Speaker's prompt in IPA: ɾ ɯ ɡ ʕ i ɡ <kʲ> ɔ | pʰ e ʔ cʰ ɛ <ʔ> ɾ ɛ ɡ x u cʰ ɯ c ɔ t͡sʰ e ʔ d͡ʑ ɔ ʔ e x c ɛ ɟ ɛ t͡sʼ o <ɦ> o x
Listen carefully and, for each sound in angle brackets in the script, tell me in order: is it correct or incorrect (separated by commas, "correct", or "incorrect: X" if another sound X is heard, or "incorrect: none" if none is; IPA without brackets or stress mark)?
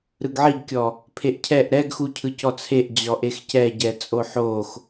correct, correct, incorrect: ħ